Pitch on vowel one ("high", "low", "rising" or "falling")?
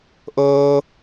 high